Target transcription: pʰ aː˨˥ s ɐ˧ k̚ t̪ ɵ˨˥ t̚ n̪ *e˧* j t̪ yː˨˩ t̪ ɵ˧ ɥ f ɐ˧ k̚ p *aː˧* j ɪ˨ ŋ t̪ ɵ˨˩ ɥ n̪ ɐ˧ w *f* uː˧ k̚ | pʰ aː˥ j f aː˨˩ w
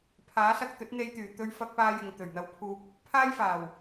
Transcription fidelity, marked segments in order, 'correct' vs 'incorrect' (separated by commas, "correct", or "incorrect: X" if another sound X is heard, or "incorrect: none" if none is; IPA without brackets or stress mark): correct, correct, incorrect: pʰ